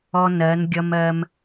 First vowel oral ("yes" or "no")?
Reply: yes